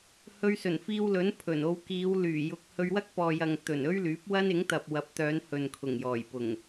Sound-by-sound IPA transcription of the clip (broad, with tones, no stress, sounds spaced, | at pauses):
h ɵ˧ ɥ s ɵ˨˩ n f iː˧ w l ɵ˨˥ n pʰ ɵ˨˩ n o˧ w k iː˨˧ w l yː˨˩ j ʊ˧ k̚ h ɵ˧ ɥ w ɐ˥ k̚ p ɔː˨ j ɐ˨ ŋ t̪ ɵ˨˩ n ɵ˥ ɥ l yː˨˥ p̚ w ɐ˥ n ɪ˨˥ ŋ t̪ ɐ˨ p̚ w ɐ˨˥ p̚ t̪ œː˨˧ n h ɵ˨ n kʰ ʊ˨˩ ŋ j ɔː˨˩ j p ʊ˨˩ ŋ